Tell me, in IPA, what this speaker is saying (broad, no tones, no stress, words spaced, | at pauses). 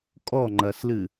kʼɔŋ͡ǃɐslɨ